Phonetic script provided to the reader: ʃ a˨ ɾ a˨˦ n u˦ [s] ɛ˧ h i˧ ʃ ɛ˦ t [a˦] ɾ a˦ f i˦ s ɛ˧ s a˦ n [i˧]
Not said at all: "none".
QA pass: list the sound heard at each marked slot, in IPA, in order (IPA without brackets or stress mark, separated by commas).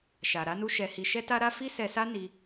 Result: ʃ, a˦, i˧